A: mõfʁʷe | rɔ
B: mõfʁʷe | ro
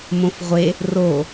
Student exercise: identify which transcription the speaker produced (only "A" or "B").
B